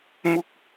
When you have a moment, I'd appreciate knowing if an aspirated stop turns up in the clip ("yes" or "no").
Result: no